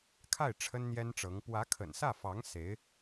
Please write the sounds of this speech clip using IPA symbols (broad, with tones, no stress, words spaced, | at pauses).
kʰa˥˩ɪ̯ ʈ͡ʂʰə˥nn̪jɛ˥nʈ͡ʂɤ˧˥ŋ pwä˧˥kʰə̰˨˩nsä˥˩fɑ˧˥ŋ se˧˥ɪ̯